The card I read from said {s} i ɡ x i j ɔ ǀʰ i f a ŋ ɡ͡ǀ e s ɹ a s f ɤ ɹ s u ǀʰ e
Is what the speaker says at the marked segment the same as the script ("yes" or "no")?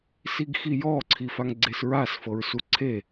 yes